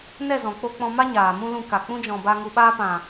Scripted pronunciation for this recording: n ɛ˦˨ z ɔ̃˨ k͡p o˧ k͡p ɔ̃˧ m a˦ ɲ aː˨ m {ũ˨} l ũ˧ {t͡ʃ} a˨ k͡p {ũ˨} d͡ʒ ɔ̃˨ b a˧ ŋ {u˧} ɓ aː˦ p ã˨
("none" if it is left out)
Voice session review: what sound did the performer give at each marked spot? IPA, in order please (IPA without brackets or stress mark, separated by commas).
ũ˦, k, ũ˦, u˧